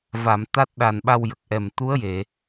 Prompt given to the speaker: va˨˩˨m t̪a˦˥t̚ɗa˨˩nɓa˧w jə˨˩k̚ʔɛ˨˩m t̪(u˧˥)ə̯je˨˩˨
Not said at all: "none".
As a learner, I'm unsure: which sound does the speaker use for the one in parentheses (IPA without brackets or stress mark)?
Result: u˧˥